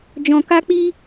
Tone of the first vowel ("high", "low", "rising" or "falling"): low